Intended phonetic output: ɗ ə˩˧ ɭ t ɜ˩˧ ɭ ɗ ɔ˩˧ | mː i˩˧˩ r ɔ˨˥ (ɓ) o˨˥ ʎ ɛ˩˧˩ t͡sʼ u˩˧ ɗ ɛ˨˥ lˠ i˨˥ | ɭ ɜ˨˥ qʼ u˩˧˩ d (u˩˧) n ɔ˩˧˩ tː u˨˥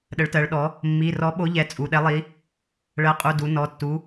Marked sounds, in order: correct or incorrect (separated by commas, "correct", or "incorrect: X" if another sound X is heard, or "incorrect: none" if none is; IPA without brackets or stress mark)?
correct, correct